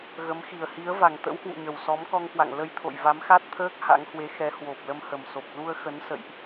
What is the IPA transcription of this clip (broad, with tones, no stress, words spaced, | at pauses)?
ɣə˨˦m xi˨˩ə̯hi˨˦ə̯va˨˩ŋ t̪ə̰˧˥whwṵ˧˨ɲə˨˩w sɔ˨˦mkɔ˧ŋkwa̰˧˨ŋ lə˧jt̪ʰo̰˧˨j va˨˦mxa˦˥t̚t̪ʰəː˦˥k̚ ha̰˧˥ŋhwe˨˦ xɛ˨˦hwo˨˩p̚lə˧m hə˨˩mso˨˩p̚ lu˧ə̯ xə˨˦n sə̰˧˨jʔ